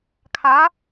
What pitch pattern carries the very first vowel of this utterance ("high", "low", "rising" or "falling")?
rising